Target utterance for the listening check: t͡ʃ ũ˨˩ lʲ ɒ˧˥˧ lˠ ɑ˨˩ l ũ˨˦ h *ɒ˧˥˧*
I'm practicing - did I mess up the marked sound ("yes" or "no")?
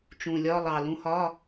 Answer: no